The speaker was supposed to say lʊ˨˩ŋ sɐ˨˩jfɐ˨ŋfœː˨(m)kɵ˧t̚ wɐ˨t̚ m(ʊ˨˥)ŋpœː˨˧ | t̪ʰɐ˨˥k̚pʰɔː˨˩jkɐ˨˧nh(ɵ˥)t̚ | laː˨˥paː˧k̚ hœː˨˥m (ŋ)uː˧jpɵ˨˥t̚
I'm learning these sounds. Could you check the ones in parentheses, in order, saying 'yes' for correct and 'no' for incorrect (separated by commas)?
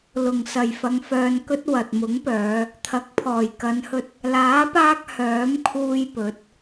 no, yes, no, no